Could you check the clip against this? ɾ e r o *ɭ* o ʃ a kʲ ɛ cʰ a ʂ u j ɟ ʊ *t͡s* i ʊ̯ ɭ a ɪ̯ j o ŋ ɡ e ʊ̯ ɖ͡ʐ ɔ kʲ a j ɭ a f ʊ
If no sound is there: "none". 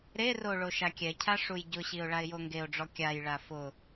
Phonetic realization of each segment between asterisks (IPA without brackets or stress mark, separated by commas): ɭ, ɕ